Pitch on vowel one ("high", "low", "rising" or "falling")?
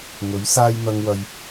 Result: rising